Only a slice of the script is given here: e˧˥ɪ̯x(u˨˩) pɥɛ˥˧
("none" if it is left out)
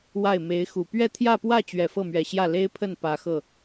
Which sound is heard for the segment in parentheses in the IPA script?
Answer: u˨˩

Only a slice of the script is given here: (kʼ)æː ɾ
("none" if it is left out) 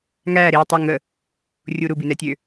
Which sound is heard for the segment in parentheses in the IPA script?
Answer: ŋ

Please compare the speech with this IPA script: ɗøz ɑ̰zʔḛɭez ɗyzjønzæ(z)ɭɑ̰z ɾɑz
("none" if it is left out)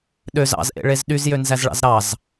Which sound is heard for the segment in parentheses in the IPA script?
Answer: z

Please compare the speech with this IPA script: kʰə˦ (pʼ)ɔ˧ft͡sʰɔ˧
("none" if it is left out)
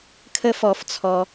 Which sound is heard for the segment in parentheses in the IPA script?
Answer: f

